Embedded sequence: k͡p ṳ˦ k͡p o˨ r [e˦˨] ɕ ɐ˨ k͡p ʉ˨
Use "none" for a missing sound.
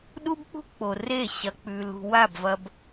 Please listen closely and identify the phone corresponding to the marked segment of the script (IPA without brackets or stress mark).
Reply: e˦˨